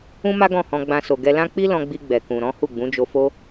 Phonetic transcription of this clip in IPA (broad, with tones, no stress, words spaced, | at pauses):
ũ˦ma˦ ɡɔ̃˦˨hɔ̃˧ɡ͡bã˧so˨ ɡɛ˧ lã˦ k͡pi˦lɔ̃˧ɡ͡bi˧ ɡ͡bɛ˨kũ˨ɾɔ̃˨˦ hu˦˨ɡ͡bũ˨˦ d͡ʒo˧fo˦